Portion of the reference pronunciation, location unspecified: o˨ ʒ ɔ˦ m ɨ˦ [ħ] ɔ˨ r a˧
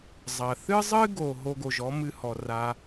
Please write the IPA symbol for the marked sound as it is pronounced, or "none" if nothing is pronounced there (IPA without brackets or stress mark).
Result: h